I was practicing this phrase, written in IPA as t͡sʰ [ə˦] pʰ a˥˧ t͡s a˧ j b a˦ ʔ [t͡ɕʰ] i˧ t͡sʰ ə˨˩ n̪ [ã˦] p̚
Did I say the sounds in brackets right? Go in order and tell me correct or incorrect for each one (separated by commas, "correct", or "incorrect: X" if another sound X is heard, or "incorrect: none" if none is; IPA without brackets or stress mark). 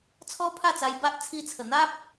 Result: incorrect: ɔ˦, incorrect: t͡sʰ, incorrect: a˦